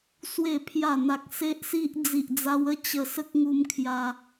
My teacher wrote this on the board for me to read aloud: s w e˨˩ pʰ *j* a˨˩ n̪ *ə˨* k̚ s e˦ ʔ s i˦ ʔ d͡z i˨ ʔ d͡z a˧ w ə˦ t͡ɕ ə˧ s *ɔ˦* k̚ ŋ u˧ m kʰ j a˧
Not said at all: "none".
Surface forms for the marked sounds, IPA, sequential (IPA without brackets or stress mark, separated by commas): j, a˨, ə˦